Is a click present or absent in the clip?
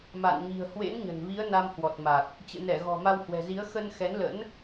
absent